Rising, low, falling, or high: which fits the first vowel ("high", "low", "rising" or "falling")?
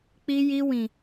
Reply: high